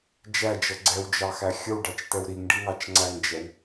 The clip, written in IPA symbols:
d͡ʒæd͡ʒʌ ɡ͡ǀɛwd͡ʒɑxæ xʲəwɖɑt͡ʃtɛw ɾiŋɖiŋɑt͡ʃ ŋ͡ǀæŋd͡ʒɛw

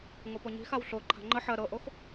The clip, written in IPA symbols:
ŋopoɲi̤xaw ɬo ǃʰa̤ŋ͡ǃə ħɜ ɾɤʔox

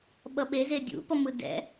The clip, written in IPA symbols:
ɓʌɓeze dʲṵpʌ mɯdɛ̰

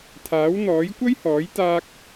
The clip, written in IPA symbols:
t̪ʰaː˨˥wn̪ɔː˨˥j kʷɐ˥jhɔː˨˥j t̪aː˥k̚

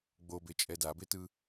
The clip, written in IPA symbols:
ɡ͡bobet͡ʃʼɛ dabetɯ

